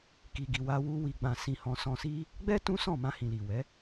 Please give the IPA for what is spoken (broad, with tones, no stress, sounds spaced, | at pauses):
k i˨ ɡ i˨ w a˧ w u˧ w i˨ ɡ͡b ã˨ s ĩ˨ h ɔ̃˨ s ɔ̃˨ s i˧ | ɡ͡b ɛ˦ t ũ˦ s ɔ̃˦˨ m ã˧ h ĩ˨ l i˨ w ɛ˨˦